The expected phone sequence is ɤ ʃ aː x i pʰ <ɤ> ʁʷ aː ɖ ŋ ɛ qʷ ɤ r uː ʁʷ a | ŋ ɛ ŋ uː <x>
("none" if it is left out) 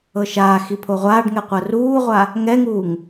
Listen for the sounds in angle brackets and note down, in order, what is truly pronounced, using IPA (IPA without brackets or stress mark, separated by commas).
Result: o, ŋ